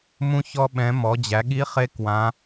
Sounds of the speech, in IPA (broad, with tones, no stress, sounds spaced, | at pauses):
m ũ˧ ç ɔ˧ ɓ ɛ̃˩˧ m ɔ˩˧ d͡ʑ æ˩˧ ɠ i˧˥ χ e˧˥ k w ã˩˧